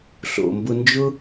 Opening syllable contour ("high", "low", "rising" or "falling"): low